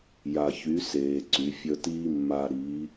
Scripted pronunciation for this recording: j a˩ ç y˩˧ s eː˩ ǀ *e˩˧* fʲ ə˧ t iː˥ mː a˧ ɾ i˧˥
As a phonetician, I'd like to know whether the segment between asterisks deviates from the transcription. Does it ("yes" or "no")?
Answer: yes